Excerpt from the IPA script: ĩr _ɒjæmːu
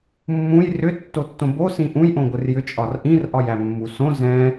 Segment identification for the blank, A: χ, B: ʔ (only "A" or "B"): B